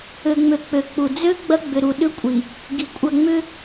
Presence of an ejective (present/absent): present